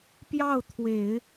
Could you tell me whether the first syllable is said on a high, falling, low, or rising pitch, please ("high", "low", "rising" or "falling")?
falling